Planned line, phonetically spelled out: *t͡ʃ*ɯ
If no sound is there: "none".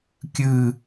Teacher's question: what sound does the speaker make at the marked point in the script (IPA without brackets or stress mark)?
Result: kʲ